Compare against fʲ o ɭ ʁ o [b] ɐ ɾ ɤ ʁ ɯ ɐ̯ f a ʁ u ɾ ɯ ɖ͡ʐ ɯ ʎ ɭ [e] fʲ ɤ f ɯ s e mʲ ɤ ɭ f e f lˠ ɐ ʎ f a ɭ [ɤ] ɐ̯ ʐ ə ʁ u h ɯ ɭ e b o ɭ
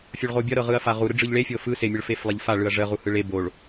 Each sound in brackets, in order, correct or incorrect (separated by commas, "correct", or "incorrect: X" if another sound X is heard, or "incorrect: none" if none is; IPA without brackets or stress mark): incorrect: bʲ, correct, incorrect: ɯ